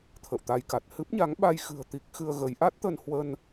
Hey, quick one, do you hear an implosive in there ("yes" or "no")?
yes